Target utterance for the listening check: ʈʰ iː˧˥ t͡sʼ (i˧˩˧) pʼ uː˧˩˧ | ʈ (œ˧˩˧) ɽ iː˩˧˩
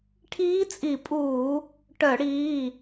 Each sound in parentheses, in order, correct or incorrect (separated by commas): correct, correct